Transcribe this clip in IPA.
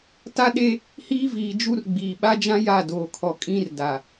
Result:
t a˦ ɗ e˦ | h iː˦ v iː˨ d͡ʒ u˦ r ɡ͡b iː˨ ɓ a˦ d͡ʒ ã˦ j a˦˨ d oː˨ kʰ ɔ˨ kʼ ĩ˦ r d a˨

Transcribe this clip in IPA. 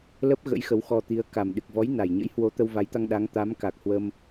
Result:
l ə˦˥ p̚ ɣ ə̰˧˥ j x ə˨˦ w x ɔ˧ t̪ i˨˦ ə̯ k a˨˩ m ɗ ɨ˨˩ k̚ v ɔ˨˦ j n a˨˩ j ɲ ə̰˧˥ j h w o˨˦ t̪ ə˧ w v a˨˦ j t̪ a˧ ŋ ɗ a˨˦ ŋ t̪ a˨˦ m k a˨˩ k̚ h w ə˧ m

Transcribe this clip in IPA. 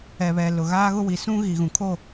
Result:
ɛ˨ β ɛ˨ l ʊ˨ ɣ aː˦ ɣ ʊ˦ w i˨ s ũ˦ ɣ i˨ ɣ ũ˨ kʰ o˦˨

